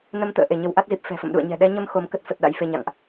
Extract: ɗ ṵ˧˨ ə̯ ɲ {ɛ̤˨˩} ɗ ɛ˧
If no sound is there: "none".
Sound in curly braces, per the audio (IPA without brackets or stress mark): ɛ̤˨˩